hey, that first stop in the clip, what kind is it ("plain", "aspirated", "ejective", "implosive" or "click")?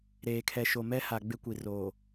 aspirated